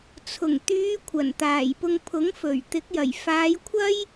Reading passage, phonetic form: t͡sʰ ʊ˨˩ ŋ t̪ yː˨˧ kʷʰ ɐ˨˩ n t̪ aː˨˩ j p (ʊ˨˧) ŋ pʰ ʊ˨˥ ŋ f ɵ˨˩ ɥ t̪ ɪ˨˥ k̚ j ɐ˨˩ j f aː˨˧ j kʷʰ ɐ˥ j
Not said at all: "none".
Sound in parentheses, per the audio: ʊ˧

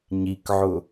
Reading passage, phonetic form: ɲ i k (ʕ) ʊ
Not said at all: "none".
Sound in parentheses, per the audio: ʕ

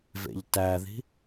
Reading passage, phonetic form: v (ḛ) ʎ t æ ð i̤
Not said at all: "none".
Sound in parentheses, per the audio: ḛ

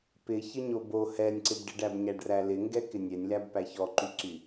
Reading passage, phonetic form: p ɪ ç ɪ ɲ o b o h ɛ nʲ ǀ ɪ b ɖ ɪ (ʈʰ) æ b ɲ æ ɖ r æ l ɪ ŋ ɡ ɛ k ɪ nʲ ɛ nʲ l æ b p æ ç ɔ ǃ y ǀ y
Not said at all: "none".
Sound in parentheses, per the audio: ɖ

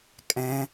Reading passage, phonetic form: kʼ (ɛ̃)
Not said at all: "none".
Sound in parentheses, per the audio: ɛ̃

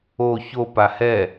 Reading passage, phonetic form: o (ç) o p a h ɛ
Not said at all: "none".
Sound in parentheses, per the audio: ç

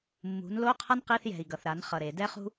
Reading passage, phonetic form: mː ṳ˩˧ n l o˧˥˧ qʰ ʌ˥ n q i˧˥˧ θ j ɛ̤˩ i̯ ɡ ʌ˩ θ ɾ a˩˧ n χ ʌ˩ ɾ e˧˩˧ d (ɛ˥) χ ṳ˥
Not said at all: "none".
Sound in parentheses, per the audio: ɛ˥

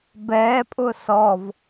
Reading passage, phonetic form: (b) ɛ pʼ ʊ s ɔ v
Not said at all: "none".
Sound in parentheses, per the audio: b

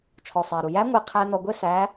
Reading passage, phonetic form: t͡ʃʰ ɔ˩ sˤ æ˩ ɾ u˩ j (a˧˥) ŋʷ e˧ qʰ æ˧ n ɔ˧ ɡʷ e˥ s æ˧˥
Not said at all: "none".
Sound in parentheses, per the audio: æ˧˥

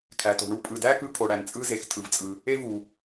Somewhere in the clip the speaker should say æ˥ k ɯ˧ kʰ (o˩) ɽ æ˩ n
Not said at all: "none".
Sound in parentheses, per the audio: o˩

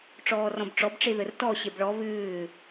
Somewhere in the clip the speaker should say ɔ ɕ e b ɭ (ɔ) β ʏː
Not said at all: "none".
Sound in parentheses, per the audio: ɔ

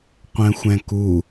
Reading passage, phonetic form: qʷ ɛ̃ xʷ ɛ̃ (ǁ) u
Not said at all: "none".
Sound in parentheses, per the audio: k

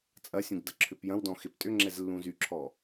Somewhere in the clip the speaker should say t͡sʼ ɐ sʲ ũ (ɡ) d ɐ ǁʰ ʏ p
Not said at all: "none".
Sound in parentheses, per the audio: ɡ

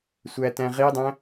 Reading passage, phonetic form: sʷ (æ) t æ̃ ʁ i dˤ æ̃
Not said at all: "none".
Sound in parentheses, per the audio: æ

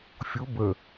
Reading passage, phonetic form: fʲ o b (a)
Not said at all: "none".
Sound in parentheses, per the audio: ə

